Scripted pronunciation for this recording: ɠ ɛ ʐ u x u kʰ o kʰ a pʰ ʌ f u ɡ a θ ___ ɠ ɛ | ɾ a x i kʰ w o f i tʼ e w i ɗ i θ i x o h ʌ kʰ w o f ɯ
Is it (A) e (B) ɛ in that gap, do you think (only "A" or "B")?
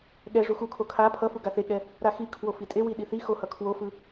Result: A